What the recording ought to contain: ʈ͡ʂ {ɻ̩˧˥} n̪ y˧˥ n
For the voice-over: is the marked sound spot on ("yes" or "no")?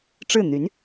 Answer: no